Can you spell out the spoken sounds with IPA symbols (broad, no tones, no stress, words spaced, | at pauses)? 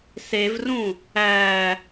sevrũ | æ